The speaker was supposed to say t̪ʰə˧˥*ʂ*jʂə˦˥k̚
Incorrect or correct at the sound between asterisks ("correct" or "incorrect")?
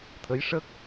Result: incorrect